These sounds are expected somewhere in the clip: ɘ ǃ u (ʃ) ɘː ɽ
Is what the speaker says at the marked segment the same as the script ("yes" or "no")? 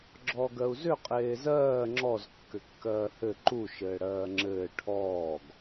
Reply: yes